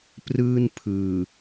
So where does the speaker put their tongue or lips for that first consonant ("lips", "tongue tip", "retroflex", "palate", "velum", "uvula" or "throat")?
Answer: lips